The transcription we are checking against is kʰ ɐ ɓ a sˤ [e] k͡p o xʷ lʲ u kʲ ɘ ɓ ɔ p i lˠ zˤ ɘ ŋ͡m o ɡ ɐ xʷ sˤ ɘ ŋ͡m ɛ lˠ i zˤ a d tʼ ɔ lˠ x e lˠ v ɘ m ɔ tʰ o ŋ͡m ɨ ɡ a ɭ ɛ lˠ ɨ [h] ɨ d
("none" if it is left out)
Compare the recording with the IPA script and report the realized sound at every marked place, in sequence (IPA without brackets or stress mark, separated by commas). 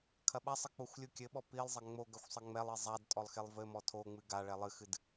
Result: ɨ, x